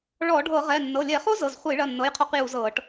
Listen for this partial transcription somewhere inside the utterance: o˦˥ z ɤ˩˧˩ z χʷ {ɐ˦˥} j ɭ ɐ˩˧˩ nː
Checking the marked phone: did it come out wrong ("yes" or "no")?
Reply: yes